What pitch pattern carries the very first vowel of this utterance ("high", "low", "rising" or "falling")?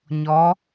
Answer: rising